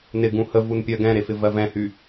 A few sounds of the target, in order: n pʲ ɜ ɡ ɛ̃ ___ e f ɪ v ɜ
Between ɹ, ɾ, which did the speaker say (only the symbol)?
ɾ